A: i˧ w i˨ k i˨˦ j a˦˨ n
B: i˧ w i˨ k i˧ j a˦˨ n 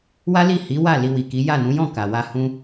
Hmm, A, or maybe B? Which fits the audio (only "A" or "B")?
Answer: A